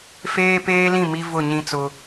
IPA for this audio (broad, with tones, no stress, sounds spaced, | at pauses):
f eː˦ p eː˦ l ĩ˦˨ m i˦ v ʊ˦˨ ɲ ĩ˦ t͡s ʊ˦